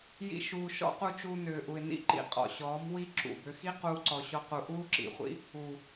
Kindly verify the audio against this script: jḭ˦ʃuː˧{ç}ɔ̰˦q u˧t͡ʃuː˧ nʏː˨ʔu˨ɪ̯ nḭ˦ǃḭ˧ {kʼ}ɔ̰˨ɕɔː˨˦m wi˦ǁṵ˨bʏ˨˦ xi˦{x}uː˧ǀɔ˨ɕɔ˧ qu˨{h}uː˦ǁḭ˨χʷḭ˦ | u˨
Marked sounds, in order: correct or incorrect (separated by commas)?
incorrect, incorrect, incorrect, incorrect